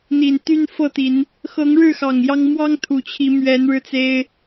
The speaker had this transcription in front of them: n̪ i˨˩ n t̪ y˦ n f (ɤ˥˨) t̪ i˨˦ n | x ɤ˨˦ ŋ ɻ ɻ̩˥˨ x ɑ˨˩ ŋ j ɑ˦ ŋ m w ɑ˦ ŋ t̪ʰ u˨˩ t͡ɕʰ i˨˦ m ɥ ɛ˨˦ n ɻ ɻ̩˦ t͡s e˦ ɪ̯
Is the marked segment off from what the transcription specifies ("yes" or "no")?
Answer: no